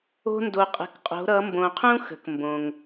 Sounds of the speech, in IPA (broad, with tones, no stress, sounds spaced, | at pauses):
o̤˥ n d o˧ qʼ ə̤˧˥ k qʼ o̤˧˥ ɾ ʌ˧˥ m b õ˧ qʰ ũ˥ x ə̤˩˧ k m b õ˩ ŋ